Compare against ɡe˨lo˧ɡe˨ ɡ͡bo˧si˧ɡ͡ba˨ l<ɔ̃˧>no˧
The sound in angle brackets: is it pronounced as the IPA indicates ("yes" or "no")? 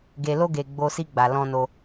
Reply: yes